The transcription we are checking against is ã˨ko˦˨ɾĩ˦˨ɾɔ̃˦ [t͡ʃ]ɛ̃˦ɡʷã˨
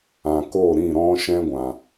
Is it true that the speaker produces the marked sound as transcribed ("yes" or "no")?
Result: no